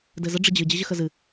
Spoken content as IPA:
d ɘ z ə ɖ͡ʐ ɪ d͡ʑ ɨ d͡ʑ ɪ ʑ ə x ə z ɨ

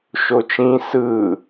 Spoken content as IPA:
ʃ o t͡ʃ ĩ s ɯ

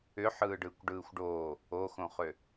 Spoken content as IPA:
ʏ ħ ɯː ɖ ɯː kʷ ɖ ɯː xʷ ɖ oː | o x õ χ ø

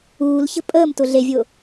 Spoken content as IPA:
uː l ç ə̤ pʼ əː m t ʊ ɮ e vʲ ʊː

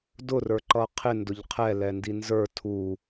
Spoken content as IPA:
d ʊ r ə˞ ǃ ʌ qʰ ɪ n d ʊ ʎ qʰ ɛ l ɛ n d i n z ə˞ tʰ u

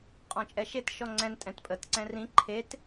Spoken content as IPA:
qʼ ɔ̃ t͡ʃʼ ɛ ʃ e t ʃ ɔ ŋ͡ǀ ɛ̃ n tʼ ɛ̃ t pʼ ə t ǀ ɛ̃ r ĩ ǃʰ e t

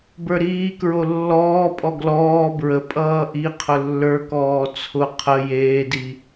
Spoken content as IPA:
b ə˞ ɾ iː k ɹ o lː ɔː pʼ ɔ ɡ l ɔː b ɹ ə pʼ ʌː ʔ i qʰ ʊ lː ə˞ k ɔː t͡sʰ ʊ qʰ ə j eː d i

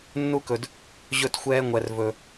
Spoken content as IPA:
nː u˦˥ k ɵ˨ d | ʑ ɵ˦˥ t xʷ ɛː˦˥ ŋʷ ɛ˨ r v ɵ˨

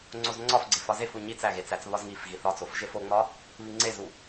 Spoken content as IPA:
ŋ͡ǀ o z ŋ͡ǀ ɒ f ɡ͡ǀ e f ɒ z e f u ɲ i t͡s æ ɣ e t͡s æ t͡s β ɒ z ŋ i f ɣ i θ ɒ t͡s o f ʒ e f o ŋ͡m ɒ | β i ŋ͡ǀ e z u

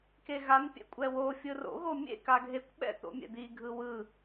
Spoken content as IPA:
k e ɣ a n pʲ ɛ̰ kʷʼ ɛ w o fʲ ɯ r o̰ ɣ o mʲ ḛ k a ɡʱ e kʷ ɓ ɛ̰ t̪ o̰ mʲ ɛ̰ d̪ i ɡʱ ɯ w ɯ

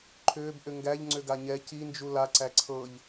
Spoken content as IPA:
ǃʰ ʏː b ʔ ʏ ŋ ɡ æ ʎ ŋ͡ǀ ʏ ɡ a ɲ ɛ c i n d͡ʒ u l a ǀ æ ǀʰ ɤ ʎ

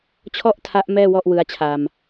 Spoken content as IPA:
t͡ɕʰ ɔ˥˩ ʔ tʰ a˦˥ ʔ m ɛː˥˩ w ɔ˥˩ ʔ w ɯ˦˥ a̯ t͡ɕʰ a˧ m

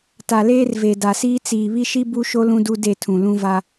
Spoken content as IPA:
t a˨ l eː˦ r v e˨ d a˨ s iː˦ t͡s iː˨ β i˦ ʃ i˦ b u˦ ʃ o˦ l ũ˦ d u˦ d e˦˨ tʰ ũ˨ l ũ˦ v a˦

